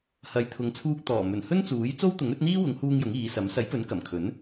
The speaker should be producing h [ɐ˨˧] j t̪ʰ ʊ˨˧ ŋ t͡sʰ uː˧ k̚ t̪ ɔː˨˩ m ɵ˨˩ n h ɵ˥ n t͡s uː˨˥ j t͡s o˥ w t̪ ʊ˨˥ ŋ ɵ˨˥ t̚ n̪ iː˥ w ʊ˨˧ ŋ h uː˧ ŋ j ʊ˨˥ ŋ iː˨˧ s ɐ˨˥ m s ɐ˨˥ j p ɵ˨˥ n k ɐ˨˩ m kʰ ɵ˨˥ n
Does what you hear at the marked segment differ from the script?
no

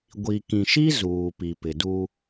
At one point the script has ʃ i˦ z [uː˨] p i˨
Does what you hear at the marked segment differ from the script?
no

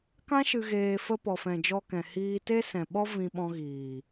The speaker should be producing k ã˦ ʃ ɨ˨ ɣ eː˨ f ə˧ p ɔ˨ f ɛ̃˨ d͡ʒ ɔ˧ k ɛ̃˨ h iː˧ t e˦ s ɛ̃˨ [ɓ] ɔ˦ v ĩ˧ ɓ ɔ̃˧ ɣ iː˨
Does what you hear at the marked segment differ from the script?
no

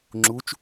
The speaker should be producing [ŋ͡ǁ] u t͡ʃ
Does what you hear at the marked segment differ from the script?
no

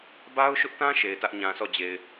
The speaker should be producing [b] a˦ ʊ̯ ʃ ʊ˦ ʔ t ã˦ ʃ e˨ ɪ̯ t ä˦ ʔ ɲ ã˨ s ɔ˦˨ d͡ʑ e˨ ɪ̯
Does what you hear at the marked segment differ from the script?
no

